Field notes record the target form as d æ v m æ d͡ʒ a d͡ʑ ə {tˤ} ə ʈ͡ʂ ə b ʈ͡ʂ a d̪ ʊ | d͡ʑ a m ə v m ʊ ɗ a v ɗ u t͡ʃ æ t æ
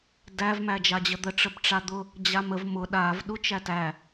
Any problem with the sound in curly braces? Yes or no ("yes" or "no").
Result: yes